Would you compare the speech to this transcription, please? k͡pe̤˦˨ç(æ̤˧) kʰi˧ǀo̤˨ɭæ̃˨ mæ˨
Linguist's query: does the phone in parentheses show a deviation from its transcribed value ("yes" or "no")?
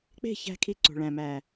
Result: no